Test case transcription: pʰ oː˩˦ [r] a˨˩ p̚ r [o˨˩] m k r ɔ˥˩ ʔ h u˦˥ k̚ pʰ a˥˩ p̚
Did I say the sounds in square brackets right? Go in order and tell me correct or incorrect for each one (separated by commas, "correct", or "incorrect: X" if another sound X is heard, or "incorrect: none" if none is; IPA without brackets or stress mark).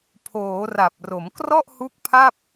correct, incorrect: o˩˦